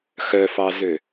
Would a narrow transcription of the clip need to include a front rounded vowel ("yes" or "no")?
yes